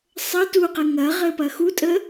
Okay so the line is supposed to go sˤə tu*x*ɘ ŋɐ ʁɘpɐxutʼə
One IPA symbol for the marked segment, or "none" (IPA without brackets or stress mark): q